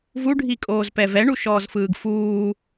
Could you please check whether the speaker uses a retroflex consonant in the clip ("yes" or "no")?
yes